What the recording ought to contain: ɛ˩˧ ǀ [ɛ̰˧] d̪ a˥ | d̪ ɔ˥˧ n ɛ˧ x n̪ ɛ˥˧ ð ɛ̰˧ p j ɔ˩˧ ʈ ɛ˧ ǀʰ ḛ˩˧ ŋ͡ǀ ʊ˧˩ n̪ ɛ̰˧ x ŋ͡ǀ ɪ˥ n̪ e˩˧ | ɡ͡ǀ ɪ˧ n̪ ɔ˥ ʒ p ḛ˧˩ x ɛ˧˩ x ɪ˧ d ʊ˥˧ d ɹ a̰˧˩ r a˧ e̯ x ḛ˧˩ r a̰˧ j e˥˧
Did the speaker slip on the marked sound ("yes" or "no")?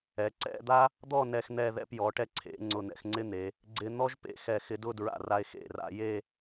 yes